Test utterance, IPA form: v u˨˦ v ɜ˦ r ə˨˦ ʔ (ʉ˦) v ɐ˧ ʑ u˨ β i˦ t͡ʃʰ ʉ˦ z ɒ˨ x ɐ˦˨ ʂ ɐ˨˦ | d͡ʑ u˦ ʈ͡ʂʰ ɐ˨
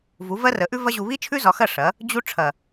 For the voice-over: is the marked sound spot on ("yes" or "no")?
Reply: yes